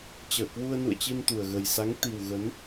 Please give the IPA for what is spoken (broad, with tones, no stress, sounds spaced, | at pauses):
t͡ɕ əː˧˩ k w u˧ ə̯ n ṵ˧˨ ə̯ t͡ɕ i˧ n t̪ u˨˩ ə̯ ɣ ə˨˩ j s a˨˦ ŋ t̪ i˨˩ w ɣ ə˨˦ n